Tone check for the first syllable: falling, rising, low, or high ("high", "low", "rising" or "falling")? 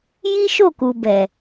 high